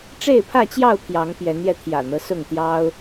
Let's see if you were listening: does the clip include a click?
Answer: no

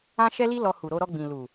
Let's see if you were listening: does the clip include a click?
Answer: no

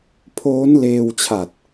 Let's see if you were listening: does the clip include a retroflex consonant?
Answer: no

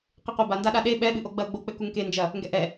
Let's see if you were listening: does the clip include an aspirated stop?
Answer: no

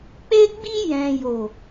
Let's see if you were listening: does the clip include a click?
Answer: no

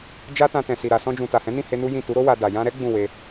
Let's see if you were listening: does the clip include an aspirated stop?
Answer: no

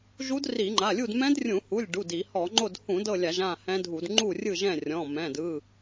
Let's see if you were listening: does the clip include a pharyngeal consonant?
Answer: no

